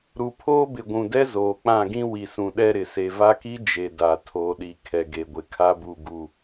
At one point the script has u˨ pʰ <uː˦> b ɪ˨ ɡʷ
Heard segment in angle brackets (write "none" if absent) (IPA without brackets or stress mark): oː˦